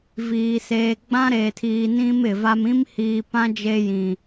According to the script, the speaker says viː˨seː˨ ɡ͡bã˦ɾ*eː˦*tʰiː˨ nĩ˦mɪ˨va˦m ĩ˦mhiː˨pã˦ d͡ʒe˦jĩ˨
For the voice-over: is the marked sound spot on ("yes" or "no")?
no